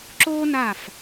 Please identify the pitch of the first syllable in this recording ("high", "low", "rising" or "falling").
high